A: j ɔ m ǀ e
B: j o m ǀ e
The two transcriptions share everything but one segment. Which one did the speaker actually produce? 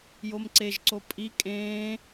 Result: B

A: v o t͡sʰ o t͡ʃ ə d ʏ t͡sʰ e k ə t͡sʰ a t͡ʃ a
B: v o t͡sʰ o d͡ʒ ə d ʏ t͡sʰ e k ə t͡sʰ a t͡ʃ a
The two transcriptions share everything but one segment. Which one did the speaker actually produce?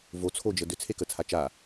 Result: B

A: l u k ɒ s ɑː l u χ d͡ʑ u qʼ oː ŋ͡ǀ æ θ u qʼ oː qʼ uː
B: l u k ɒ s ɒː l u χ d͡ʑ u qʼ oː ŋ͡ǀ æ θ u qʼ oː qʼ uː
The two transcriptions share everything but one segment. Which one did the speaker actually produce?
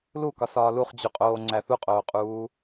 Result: B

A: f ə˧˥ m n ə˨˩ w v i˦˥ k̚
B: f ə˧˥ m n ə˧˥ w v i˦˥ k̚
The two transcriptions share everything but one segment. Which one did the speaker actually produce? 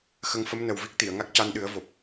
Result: A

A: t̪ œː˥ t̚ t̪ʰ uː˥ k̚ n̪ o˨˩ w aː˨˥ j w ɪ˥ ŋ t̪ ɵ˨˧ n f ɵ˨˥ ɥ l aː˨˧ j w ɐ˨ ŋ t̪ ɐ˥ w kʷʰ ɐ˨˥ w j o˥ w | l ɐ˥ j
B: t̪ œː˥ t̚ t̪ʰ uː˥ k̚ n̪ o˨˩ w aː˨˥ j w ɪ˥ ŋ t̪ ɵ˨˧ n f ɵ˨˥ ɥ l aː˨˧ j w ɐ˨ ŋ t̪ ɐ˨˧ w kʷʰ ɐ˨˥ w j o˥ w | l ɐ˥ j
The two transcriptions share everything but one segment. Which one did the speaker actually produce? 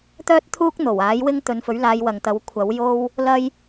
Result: B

